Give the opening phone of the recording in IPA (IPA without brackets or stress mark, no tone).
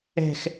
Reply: ɛ̤